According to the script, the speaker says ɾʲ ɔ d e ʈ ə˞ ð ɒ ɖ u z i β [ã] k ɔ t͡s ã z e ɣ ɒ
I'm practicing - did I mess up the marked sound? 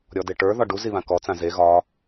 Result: no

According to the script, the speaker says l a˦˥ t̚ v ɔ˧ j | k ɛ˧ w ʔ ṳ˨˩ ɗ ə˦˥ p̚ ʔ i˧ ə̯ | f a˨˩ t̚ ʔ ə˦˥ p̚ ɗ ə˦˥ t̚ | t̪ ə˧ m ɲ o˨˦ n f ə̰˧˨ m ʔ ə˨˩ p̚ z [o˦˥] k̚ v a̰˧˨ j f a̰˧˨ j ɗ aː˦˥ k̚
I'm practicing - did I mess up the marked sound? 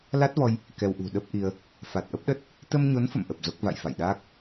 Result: no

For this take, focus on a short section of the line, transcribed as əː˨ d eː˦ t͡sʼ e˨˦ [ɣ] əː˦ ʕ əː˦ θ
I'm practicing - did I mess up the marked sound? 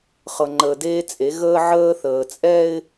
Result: no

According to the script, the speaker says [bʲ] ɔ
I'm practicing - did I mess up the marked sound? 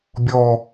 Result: no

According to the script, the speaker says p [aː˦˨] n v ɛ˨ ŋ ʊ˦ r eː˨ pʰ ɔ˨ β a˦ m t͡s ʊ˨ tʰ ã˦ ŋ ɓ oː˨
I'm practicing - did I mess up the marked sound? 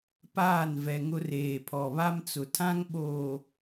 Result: no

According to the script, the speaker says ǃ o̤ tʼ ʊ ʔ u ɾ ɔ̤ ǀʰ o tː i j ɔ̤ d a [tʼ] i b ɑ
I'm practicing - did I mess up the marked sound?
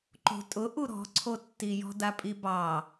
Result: yes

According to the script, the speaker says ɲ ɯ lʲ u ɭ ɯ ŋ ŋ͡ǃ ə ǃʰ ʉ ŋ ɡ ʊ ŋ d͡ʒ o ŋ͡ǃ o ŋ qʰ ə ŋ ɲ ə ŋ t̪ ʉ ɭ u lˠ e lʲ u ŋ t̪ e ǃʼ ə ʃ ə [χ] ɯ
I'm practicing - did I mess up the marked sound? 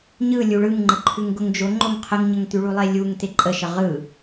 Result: yes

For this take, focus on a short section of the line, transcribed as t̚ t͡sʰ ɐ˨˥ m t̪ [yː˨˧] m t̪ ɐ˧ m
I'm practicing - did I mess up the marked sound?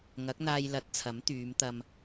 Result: no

